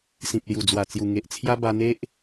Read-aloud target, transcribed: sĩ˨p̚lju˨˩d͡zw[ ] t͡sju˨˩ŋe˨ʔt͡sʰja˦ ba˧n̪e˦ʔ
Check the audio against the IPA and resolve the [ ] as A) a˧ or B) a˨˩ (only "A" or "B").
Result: B